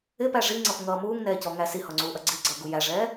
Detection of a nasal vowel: absent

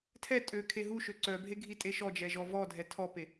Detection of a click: present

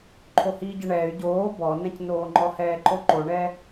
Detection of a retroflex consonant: present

